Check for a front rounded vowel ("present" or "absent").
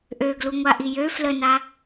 present